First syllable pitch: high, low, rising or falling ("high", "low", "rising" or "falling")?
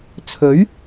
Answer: rising